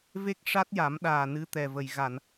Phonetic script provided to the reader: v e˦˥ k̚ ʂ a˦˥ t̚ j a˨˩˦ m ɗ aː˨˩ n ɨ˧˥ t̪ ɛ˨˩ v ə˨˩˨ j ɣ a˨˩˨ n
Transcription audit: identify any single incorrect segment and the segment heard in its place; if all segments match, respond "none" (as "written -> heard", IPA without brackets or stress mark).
none